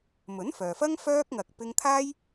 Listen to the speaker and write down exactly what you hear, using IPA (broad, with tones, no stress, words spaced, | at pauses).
mɵ˨˥nfœː˨fɐ˥ŋ fœː˥k̚ŋɐ˧k̚ pɪ˥ŋ t̪ʰaː˥j